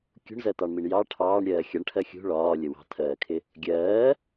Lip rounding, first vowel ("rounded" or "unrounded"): rounded